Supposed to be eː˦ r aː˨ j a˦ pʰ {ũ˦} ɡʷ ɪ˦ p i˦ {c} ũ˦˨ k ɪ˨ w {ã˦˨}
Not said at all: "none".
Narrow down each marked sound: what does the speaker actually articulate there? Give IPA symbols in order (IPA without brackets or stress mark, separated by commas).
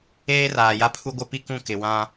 u˦, k, ã˦